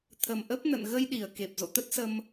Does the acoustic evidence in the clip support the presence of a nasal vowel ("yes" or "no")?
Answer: no